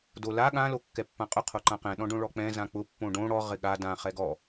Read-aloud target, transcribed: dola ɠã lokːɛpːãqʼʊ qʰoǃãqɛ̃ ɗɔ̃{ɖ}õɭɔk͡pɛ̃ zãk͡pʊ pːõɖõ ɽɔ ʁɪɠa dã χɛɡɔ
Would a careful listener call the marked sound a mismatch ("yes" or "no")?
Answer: no